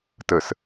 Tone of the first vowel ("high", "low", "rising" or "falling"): low